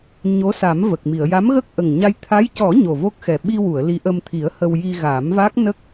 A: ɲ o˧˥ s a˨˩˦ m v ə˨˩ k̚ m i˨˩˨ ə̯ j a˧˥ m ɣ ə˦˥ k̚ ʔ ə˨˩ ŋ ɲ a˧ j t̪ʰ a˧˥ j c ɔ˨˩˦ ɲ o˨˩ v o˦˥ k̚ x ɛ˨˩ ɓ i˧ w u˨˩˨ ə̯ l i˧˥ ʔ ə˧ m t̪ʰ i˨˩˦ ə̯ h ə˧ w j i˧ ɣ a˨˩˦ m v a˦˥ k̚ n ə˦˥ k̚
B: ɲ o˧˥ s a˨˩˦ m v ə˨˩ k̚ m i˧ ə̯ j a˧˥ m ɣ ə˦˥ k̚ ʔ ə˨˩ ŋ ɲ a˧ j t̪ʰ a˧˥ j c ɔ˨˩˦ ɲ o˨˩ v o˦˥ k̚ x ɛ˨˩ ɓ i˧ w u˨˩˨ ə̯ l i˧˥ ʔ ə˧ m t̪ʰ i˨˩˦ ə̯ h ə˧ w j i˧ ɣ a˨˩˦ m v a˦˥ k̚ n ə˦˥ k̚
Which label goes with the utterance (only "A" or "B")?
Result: A